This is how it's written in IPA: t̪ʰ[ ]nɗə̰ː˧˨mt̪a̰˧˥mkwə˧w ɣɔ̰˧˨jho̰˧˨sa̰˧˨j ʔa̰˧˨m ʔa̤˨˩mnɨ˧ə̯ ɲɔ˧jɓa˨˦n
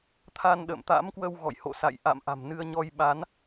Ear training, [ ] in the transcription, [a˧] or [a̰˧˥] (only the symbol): a˧